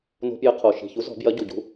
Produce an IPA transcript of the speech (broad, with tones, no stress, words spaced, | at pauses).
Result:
no̤˦pjɘ˦qʰo˨˩ ʃi̤˨˩çu˨˥zɔ̤˨˩˦ bjɐ˨˥ ɟu˨˩ɟṳ˨˥